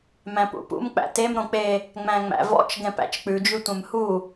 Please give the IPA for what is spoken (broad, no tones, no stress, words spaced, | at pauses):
mæ̃pṵpṵm k͡pæ̰tem ɾõk͡pe | ŋ͡mæ̃ŋ͡mæ̰vɔ̰t͡ʃ ɡɛ̃pæ̰t͡ʃk͡pʉ d͡ʒʉtʷɛ̃mhu